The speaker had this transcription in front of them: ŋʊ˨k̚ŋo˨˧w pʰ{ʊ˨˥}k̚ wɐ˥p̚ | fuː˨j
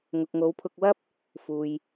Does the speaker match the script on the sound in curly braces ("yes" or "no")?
no